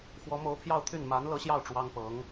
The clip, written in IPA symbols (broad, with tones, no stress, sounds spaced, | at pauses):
x w ɔ˧˥ m o˧˥ ʊ̯ pʰ j ɑ˥˧ ʊ̯ t̪ʰ y˥˩ n m a˧˥ n l ɤ˧˥ ɕ j ɑ˥˩ ʊ̯ ʈ͡ʂ w ɑ˥ ŋ p ɤ˧˥ ŋ